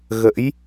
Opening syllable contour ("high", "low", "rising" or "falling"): rising